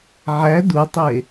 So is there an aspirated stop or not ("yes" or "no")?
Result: no